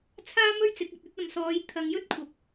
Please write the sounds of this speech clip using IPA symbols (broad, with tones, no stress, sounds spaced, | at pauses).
t͡sʰ aː˥ m ɵ˥ ɥ t͡s ɪ˨˥ k̚ ɐ˧ t̚ ɵ˧ t̚ ɐ˨ m s ɔː˨˧ j t̪ʰ ɐ˧ ŋ j ɵ˥ t̚ kʷʰ ɐ˨˥ p̚